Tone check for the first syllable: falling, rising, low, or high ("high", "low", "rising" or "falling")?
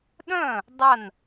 falling